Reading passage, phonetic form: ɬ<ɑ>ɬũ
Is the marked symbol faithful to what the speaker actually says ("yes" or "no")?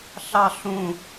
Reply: yes